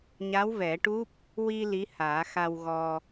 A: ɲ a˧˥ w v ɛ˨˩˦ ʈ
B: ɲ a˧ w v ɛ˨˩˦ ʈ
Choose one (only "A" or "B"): A